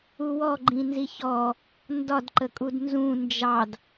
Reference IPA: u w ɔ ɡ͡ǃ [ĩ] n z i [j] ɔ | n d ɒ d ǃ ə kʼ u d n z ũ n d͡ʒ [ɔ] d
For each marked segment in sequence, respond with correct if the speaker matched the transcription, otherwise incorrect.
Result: correct, incorrect: ç, incorrect: ɑ

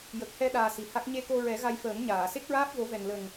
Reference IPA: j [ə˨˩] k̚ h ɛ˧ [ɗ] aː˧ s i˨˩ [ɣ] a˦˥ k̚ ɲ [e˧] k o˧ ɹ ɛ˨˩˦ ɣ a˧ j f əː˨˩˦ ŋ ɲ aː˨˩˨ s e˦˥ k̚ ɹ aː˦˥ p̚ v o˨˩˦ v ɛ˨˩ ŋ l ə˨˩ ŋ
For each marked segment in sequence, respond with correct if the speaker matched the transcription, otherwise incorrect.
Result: correct, correct, incorrect: h, correct

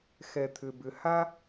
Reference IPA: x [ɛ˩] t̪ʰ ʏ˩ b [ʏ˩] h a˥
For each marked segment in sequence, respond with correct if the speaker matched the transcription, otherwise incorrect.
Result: correct, correct

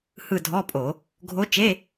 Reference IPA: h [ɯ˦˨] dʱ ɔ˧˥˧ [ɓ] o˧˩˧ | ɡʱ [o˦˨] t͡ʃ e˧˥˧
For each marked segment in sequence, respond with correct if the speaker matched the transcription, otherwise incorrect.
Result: correct, incorrect: pʼ, incorrect: o˧˥

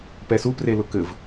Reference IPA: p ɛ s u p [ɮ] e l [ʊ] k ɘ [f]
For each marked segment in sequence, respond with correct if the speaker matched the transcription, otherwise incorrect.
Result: incorrect: r, correct, incorrect: v

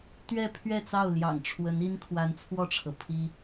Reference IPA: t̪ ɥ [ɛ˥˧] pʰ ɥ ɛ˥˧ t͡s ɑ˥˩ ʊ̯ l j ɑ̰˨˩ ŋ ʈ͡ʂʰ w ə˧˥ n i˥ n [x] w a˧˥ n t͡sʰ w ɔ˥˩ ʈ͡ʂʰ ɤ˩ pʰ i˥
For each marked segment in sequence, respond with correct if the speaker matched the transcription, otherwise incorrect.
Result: correct, incorrect: kʰ

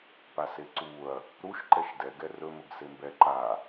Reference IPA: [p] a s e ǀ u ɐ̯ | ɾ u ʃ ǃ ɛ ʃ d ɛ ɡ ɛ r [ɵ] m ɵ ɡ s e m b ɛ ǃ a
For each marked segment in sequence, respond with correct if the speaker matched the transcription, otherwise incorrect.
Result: correct, correct

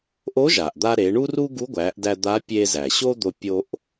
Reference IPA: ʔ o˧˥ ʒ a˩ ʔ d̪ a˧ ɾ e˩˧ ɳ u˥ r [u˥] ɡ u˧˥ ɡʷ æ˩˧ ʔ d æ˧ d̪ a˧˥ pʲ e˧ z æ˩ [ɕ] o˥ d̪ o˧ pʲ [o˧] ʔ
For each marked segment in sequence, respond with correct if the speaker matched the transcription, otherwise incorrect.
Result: correct, correct, correct

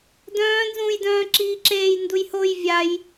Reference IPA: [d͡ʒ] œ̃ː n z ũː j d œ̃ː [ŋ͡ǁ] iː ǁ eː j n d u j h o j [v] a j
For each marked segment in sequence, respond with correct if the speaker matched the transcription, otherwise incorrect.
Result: incorrect: d, incorrect: ǁ, incorrect: vʲ

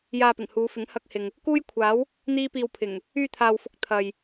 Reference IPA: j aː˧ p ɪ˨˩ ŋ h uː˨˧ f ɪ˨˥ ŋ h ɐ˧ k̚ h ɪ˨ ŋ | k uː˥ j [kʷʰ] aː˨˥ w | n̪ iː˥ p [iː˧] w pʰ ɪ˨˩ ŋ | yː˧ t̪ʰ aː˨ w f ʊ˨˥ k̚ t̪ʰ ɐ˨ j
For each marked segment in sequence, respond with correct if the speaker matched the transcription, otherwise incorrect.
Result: correct, correct

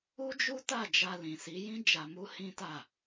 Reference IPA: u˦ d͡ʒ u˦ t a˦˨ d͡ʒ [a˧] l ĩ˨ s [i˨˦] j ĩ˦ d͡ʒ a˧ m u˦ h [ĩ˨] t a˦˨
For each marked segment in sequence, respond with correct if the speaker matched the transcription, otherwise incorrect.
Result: correct, correct, incorrect: ĩ˦

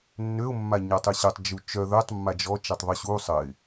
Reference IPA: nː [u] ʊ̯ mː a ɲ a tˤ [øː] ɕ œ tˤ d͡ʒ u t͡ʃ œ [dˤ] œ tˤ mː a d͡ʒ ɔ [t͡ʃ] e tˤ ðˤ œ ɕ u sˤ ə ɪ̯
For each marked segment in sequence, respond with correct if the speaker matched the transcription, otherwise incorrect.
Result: incorrect: ø, incorrect: ø, incorrect: ð, correct

